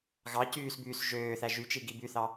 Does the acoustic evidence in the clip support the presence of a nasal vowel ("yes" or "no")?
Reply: no